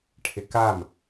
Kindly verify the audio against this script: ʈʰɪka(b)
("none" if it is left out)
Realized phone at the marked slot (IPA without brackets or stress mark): m